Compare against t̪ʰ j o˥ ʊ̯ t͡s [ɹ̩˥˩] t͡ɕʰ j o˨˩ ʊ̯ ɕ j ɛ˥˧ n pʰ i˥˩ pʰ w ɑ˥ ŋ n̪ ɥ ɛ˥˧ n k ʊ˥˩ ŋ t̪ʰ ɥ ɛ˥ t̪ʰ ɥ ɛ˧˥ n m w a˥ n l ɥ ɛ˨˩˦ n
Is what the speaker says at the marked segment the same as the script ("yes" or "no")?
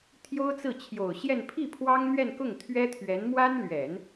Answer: yes